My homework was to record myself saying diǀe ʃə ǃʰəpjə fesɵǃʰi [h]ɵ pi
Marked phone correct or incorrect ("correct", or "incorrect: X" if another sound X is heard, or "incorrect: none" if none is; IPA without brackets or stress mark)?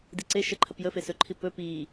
incorrect: p